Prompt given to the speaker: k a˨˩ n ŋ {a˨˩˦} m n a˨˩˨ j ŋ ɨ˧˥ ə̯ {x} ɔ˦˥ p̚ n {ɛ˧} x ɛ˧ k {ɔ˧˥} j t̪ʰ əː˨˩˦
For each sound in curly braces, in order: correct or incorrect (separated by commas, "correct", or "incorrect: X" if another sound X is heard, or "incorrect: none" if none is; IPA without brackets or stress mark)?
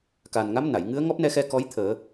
incorrect: a˧˥, incorrect: ŋ, correct, correct